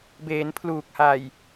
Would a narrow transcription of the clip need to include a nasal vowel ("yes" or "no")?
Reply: no